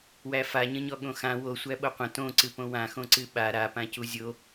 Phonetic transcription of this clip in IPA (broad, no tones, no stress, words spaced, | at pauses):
wæfaɲə̃ɲɔ ɠõxã wo sʷæɓoqʷə̃ tõ ǀɨpõwãxõ ǀɨɓa ɾapã cuzʲo